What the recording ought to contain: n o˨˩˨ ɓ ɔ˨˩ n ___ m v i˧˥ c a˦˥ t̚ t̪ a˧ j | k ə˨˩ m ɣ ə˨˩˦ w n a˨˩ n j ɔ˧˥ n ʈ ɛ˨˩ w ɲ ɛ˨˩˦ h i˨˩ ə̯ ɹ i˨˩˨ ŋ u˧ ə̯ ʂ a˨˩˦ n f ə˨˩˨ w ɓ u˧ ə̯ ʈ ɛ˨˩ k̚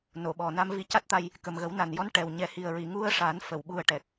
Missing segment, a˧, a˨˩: a˧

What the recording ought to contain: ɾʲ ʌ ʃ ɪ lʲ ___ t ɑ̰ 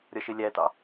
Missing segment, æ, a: æ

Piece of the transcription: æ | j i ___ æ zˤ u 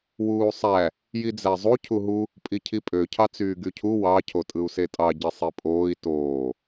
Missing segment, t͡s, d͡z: d͡z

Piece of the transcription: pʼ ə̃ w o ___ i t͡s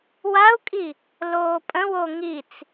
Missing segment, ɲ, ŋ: ŋ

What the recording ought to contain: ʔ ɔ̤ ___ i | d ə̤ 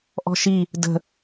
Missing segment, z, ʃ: ʃ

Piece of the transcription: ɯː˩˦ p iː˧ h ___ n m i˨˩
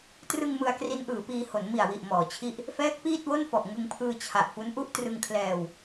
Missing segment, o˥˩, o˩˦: o˩˦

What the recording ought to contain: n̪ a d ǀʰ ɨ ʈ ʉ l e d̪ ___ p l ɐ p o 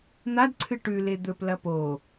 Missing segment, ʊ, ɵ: ɵ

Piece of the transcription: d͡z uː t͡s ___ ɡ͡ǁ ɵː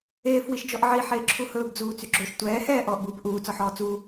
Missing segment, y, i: y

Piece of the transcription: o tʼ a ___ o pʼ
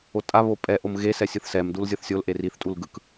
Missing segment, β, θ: β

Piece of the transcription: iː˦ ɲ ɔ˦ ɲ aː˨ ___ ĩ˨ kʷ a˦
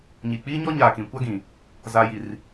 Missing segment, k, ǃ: k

